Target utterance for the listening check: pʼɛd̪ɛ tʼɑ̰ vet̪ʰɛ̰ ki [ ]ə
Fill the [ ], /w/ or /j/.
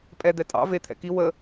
w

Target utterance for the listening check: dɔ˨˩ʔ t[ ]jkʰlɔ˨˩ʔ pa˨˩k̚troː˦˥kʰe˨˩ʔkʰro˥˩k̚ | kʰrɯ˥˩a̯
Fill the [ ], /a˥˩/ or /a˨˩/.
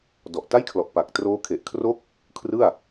a˥˩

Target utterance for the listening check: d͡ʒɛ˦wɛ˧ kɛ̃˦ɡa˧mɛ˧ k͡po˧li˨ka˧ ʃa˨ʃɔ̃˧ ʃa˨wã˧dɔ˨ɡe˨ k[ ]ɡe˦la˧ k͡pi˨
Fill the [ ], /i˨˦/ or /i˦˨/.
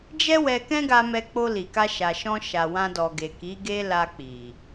i˨˦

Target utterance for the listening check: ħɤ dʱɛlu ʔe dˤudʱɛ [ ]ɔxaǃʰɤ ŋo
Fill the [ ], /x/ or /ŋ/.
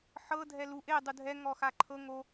ŋ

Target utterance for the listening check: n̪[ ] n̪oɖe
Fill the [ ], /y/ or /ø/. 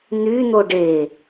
y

